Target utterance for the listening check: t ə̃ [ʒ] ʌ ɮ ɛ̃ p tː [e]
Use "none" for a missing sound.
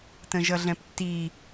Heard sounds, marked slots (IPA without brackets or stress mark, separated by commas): ʒ, i